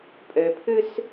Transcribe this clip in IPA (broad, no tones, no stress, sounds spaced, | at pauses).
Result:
pʼ ø pʰ ʉ s